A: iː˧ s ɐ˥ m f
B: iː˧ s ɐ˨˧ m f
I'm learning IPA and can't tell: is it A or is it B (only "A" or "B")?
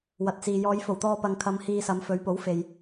B